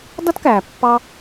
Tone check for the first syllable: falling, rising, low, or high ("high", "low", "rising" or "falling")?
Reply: high